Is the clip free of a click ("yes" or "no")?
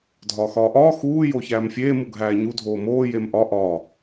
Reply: yes